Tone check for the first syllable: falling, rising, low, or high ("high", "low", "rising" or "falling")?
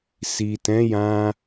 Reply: low